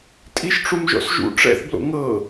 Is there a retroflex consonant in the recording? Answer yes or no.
yes